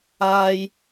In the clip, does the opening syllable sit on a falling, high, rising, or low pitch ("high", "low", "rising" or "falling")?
high